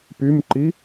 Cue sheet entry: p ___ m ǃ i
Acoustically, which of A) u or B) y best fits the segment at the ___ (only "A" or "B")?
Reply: B